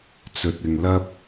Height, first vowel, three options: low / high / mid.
mid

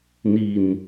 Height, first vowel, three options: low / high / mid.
high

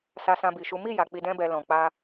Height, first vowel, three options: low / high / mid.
low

